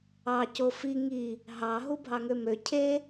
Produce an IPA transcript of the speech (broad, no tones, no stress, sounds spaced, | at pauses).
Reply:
ɑ c o f i ŋ i | ɦ ɑ ɦ u bʱ ɑ ŋ ø m ø cʰ e